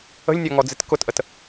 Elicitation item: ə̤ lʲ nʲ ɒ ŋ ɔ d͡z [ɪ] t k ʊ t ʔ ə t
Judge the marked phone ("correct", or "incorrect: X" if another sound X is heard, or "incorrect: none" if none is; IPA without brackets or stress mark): correct